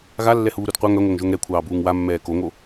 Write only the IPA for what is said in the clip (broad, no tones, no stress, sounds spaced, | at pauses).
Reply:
ɣ a lː ɛ h uː ɾ u d qʷ œ ŋ œ ŋʷ œ ŋ ʒ o ŋ ɾ ɛ kʷʰ ɑː b uː ŋ w a mː ɛː k o ŋ o